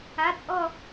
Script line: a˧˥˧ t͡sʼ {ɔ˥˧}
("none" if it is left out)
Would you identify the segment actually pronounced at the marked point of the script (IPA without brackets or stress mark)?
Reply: ɔ˥˧